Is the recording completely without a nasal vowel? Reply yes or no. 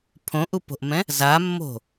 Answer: no